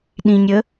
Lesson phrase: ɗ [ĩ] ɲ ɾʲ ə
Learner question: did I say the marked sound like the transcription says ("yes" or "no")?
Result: yes